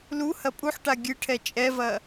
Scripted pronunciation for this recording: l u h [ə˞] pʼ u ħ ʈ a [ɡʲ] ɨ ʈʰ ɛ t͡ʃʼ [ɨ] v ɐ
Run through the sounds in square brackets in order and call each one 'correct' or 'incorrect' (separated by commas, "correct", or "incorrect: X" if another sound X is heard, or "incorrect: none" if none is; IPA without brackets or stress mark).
incorrect: ɐ, correct, incorrect: ɛ